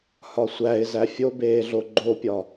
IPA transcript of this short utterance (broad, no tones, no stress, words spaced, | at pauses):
hɒsʷæɪ̯ zæfʲobeːɮo ɡ͡ǃopʲɒ